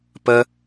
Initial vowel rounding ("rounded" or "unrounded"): unrounded